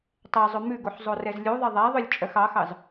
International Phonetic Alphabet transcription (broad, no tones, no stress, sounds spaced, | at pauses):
tˤ ɛ zˤ ɵ m ʉ ɡ o ħ zˤ o r ɛ z lʲ u ðˤ e ðˤ æ ðˤ ø lʲ t͡ʃʼ œ x ɑ x ɑ z